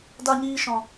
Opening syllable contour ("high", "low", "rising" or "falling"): high